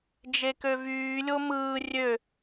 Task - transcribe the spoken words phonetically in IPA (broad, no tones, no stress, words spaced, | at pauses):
d͡ʒekøvyː lʲomɯː rʲø